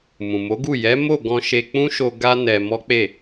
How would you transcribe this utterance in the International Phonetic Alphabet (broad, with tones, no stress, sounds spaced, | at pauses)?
m ũ˨ m o˨˦ ɡ u˦˨ j ɛ˨˦ m o˦˨ ɡ ɔ̃˧ ʃ e˧ k͡p ũ˦ ʃ o˧ ɡ a˦ n ɛ˧ m ɔ˦ k͡p e˦˨